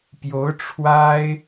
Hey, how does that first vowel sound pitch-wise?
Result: rising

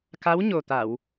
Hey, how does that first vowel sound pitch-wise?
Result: rising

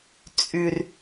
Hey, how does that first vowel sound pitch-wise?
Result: low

